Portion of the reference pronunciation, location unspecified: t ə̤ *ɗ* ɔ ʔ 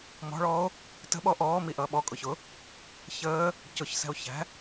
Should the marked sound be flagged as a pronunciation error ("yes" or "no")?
yes